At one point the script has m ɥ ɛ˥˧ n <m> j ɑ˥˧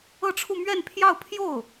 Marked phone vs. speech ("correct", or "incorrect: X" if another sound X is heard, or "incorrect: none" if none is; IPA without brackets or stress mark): incorrect: pʰ